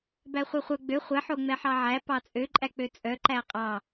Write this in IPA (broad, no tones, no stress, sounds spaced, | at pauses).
b æ χʷ œ χʷ œ ɡ͡b ø χʷ ɛ ħ o ŋ͡m ɛ ħ ɑ ʕ æ p ɑ t͡sʼ ø ǃʼ æ k͡p ø t͡sʼ œ ǃ æ qʼ ɑ